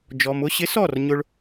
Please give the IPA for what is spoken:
d͡ʒɔ˨mʊ˧ɕɪ˨˦sɔ˦˨r ɲʊ˦ɭ

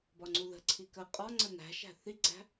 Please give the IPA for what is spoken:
bɒŋ͡ǀuðə̤ǀʰi kə qʼɒŋ͡ǀə næ̤ʃæ̤ θiɡ͡ǀæ̤

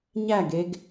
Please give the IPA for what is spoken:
ɲæɡeɡ

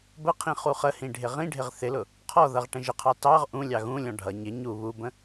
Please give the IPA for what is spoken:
bəqʰĩ χuχəhĩ ɖʱɪʁĩɖʱɪʁ θɪlʊ | qʰɔðʌʁ ʈə̃ʒəqʰɑ tɑʁ ʔũlʲɑ ɣũlʲɔ̃ ɖʱʌ ɲɪ ɲu βubə̃

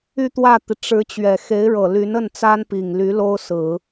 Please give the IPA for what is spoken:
y˥˧t̪wä˥˩t̪i˩ ʈ͡ʂɻ̩˧˥ t͡ɕɥɛ˨˩ xe˧˥ɪ̯ɻɤ˨˩ly˧˥nə˥˩n t͡sa˥npi˨˩ŋly˧˥ lo˥ʊ̯sɹ̩˨˩˦

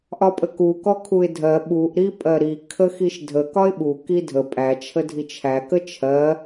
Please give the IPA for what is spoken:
ʔɒpʼəku kɔkʰuɪ̯dʱɜ ɓuʔ ɾipʼɜɾi kʰəxiʃdʱə kɒɪ̯ɓu kidʱə pʼæ t͡ʃʰədʱit͡ʃʰæ kət͡ʃʰɜ

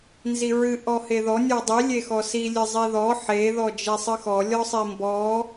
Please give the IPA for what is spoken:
nziɹɨ ʔɔheðɔ nʲɔdˤi lʲexɔsi lʲɨzˤiðɔ ħe ðɔd͡ʒesˤɨxɔ lʲɔsˤimbɔ

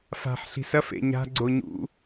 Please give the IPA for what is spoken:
fa̤ħ ɬi̤sɐf ḛɲa̤ ɡ͡ǀoɲṵ

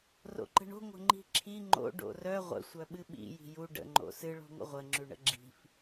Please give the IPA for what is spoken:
ro̰ǃə̤ɳo̤ ŋʷə̤ŋ͡ǃi̤ǁʰi ŋ͡ǃo̰ ɖo̰rœ ʁʷə̰ sʷœɓɨɓḭ ji̤ju ɖə̰ ŋ͡ǃo̰sɨ ɭo̤ŋʷə̰ʁʷə ŋ͡ǁʉɳə̰ɡ͡ǁi̤f

